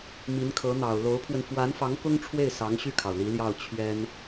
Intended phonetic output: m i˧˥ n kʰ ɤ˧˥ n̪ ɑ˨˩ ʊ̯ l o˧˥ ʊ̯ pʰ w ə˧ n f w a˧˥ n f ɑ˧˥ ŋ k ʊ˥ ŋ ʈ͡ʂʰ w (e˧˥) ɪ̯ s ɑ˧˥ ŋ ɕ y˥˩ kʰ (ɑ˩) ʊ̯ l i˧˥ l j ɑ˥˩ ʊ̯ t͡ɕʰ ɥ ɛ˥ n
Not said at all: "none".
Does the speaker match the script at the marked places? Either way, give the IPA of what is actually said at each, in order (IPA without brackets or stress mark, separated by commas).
e˥˩, ɑ˩